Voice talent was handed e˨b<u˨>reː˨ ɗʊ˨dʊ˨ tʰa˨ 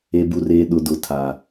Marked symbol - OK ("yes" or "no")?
yes